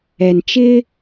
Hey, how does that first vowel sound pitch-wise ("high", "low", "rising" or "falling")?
low